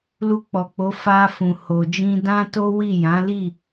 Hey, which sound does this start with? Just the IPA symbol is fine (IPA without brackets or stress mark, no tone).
l